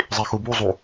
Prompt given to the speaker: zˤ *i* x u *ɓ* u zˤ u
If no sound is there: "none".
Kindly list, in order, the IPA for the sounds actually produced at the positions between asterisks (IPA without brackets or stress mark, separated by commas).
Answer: i, b